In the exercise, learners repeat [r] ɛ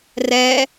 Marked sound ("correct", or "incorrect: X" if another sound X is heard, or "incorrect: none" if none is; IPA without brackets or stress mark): correct